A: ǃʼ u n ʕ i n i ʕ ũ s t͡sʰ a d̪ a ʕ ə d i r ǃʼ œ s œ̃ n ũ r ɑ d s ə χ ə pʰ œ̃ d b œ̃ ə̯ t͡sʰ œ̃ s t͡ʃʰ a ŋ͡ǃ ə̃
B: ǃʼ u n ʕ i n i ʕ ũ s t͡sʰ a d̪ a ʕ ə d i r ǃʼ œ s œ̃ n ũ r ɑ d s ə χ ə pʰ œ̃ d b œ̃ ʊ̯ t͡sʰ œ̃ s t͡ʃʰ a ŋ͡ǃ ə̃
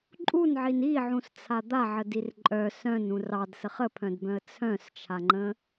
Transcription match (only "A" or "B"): A